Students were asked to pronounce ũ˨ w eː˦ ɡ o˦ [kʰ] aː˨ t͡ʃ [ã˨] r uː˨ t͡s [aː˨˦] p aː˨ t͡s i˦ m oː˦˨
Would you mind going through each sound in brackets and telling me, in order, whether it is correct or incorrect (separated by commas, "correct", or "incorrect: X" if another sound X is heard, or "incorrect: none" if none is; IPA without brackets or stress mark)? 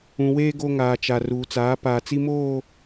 incorrect: ŋ, incorrect: a˨, correct